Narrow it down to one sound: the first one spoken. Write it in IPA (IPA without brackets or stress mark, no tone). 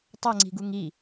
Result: tˤ